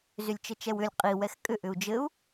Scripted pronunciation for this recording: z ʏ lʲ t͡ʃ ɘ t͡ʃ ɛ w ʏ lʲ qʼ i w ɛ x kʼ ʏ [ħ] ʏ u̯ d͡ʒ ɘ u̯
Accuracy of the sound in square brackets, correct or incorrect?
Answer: incorrect